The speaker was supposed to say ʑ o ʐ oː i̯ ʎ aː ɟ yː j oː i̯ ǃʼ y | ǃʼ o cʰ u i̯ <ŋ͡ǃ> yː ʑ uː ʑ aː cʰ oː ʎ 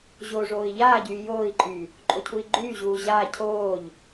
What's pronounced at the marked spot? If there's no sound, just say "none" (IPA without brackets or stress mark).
ɡ͡ǃ